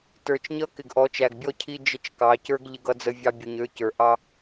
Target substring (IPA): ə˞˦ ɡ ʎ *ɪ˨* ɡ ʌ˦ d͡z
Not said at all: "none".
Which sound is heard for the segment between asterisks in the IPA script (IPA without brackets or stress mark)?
ɪ˦